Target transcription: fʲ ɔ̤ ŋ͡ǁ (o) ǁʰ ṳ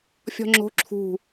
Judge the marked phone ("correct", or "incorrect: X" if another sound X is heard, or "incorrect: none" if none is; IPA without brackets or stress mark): incorrect: o̤